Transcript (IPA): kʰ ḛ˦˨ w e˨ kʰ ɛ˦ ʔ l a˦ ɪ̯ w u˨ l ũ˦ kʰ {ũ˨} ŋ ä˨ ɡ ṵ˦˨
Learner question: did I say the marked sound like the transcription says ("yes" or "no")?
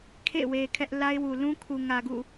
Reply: no